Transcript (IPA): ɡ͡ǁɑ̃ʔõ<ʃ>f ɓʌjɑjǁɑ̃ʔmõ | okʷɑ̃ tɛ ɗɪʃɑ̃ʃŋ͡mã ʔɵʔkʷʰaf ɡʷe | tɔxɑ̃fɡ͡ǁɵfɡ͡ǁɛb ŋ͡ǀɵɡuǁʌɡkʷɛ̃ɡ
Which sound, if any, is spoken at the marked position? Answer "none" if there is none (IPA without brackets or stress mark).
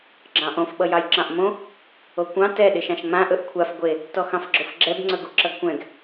none